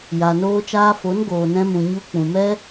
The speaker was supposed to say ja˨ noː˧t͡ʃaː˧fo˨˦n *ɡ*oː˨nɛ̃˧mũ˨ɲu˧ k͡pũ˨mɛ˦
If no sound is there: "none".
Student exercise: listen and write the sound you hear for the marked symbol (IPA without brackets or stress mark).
ɡ